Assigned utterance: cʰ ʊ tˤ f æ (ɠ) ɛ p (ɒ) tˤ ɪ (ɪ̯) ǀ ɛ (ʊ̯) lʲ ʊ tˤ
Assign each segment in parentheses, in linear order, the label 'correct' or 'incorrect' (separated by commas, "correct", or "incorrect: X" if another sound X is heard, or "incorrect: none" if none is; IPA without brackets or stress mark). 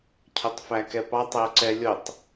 incorrect: k, incorrect: ɑ, incorrect: ʊ̯, incorrect: none